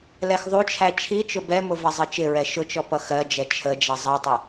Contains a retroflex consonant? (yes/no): no